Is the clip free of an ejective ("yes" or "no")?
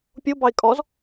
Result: no